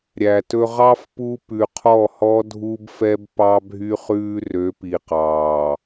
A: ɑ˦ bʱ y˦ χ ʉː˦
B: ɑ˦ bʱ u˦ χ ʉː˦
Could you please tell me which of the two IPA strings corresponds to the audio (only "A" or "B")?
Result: A